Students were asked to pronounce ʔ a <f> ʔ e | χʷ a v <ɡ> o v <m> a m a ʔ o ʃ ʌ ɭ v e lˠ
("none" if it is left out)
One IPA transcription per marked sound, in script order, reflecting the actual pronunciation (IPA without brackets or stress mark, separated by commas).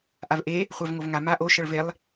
v, ŋ, ŋ